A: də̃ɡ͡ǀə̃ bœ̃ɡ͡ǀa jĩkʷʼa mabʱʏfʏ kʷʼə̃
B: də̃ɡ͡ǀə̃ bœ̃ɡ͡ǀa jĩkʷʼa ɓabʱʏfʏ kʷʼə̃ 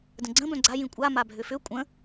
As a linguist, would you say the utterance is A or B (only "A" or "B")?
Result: A